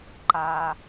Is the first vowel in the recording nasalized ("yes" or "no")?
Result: no